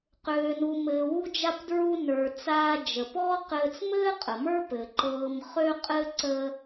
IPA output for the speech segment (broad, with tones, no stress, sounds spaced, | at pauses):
q øː˩ n u˩ m ɘː˩ w u˧ d͡ʒ a˧ p d ɹ u˧ n ə˞˩ t͡s aː˧ d͡ʒ ə˩ p ɔː˥ q ɘː˧ t͡s m ɘː˥ qʼ ə˩ m ə˞˥ p ɘ˩ ǃ ɤː˧ m χ ø˥ qʼ ɘ˥ ǀ ə˧